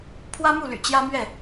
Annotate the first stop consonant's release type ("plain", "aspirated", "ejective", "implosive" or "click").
aspirated